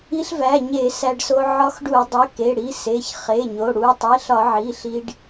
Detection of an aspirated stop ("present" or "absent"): absent